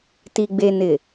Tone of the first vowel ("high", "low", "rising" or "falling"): low